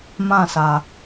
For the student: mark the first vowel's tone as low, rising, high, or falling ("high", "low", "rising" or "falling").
falling